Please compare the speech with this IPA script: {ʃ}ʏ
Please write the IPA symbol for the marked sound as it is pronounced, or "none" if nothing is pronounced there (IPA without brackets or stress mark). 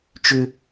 t͡ʃ